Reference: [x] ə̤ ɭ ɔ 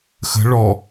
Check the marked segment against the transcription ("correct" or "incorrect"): correct